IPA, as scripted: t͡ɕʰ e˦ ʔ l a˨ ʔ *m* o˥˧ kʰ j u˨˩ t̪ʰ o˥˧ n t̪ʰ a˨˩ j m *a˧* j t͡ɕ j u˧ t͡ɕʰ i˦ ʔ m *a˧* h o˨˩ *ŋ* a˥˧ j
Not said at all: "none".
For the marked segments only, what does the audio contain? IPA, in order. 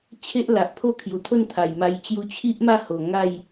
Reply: pʰ, a˧, a˥˧, ŋ

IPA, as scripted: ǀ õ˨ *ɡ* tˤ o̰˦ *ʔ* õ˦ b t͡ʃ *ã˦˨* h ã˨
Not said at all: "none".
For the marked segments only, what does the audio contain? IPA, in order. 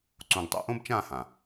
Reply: ɡ, ʔ, ã˦˨

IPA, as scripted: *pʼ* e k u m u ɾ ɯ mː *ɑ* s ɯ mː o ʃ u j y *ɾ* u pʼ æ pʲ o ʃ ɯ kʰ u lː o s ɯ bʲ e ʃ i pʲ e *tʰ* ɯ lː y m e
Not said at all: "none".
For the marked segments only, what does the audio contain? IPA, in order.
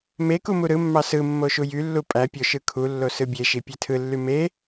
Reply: m, ɑ, lː, tʰ

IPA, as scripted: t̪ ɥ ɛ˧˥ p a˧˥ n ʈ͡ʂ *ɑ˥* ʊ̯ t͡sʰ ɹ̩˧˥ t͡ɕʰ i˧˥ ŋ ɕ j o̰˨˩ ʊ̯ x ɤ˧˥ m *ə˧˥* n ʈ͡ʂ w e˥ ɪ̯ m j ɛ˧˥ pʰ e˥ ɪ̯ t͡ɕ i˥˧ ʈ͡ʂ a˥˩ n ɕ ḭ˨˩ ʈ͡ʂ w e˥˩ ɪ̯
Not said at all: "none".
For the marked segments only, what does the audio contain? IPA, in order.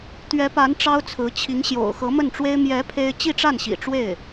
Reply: ɑ˥, ə˥˩

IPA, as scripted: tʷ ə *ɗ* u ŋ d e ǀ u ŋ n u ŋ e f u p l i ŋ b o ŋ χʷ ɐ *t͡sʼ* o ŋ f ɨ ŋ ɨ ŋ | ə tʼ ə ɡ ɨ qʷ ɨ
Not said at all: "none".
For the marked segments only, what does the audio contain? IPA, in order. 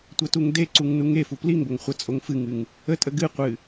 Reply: t, t͡sʼ

